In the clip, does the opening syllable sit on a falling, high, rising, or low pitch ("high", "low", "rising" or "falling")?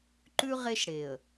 high